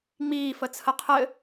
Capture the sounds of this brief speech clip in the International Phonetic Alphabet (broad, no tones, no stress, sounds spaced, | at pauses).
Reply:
ŋ͡m iː f ə t͡sʰ ə qʰ ɘ